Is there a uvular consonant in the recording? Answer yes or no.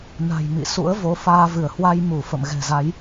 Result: no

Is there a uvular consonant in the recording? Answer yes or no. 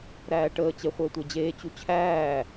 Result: yes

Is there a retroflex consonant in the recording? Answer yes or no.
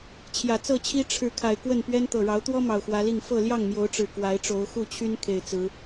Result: yes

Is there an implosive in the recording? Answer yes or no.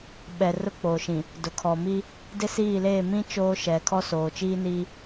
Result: yes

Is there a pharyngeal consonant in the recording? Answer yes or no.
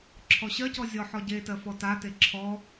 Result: yes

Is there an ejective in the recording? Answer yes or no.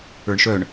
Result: no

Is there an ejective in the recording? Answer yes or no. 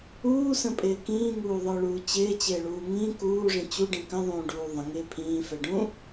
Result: yes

